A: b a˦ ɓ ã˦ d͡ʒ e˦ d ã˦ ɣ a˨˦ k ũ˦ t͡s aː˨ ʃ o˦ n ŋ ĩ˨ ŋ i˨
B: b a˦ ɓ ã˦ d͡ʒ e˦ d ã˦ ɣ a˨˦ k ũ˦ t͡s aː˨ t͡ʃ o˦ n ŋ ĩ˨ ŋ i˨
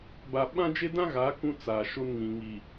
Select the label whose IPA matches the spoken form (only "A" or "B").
A